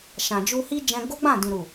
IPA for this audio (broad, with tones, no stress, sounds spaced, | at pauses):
ʃ ã˨ d͡ʒ u˧ h i˦ d͡ʒ ɛ̃˧ ɡ o˦ ɡ͡b ã˦˨ d ĩ˨ ɾ u˨